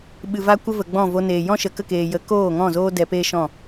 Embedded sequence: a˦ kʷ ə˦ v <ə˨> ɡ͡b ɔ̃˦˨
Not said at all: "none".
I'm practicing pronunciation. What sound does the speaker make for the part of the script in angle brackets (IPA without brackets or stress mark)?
ə˨